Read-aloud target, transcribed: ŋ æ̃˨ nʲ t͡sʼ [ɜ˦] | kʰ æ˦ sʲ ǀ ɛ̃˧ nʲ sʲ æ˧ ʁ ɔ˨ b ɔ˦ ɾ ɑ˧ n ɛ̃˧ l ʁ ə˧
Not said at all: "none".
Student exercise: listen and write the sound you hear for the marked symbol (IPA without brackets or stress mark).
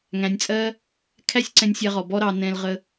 ɜ˦